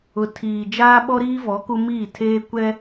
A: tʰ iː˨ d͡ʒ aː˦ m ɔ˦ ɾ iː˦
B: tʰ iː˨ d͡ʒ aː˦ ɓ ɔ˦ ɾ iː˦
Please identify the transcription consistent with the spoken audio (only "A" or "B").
B